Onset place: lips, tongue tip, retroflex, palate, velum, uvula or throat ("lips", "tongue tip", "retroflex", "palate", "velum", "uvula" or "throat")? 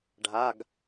retroflex